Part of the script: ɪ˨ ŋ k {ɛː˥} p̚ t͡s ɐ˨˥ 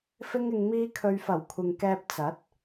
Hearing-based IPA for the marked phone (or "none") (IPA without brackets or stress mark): ɛː˧